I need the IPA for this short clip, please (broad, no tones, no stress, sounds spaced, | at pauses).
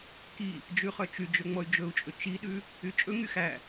k i | d͡ʒ ʉ χ œ t͡ʃ y d͡ʒ ɵ ŋ͡m ɔ y̯ d͡ʒ ɵ u̯ t͡ʃʼ ɵ t͡ʃ i ɗ ʉ | y t͡ʃʼ ɵ ŋ y x æ